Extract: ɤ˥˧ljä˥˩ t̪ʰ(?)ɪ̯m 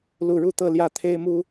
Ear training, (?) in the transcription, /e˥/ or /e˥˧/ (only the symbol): e˥